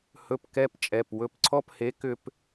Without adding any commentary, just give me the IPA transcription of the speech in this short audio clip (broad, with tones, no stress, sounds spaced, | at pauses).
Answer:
h ɵ˧˥˧ p k ɛ˧˥˧ p t͡ʃʼ ɛ˩˧˩ p w ɵ˨˥ p ǀʰ ɔ˧˥˧ p h e˨˥ k ʏ˧ p